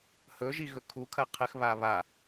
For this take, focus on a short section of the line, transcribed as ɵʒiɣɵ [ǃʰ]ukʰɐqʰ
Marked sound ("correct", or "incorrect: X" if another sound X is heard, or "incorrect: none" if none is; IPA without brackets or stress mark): incorrect: kʰ